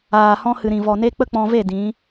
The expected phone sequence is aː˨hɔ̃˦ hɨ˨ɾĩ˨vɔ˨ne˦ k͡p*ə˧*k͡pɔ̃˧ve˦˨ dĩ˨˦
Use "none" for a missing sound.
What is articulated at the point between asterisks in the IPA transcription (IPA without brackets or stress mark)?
ə˦